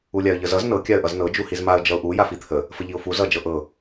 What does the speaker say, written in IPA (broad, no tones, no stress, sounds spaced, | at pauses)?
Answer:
u lʲ a ə̯ ʎ ə z ʌ z n ɤ kʲ a ə̯ ʔ ʌ z n ɤ d͡ʒ u h i z m a ə̯ d͡ʒ ʌ ʊ̯ ʔ u j a f i t̪ʰ ə | f ə ʎ i ʊ̯ f u z ʌ d͡ʒ ɤ ʔ ɤ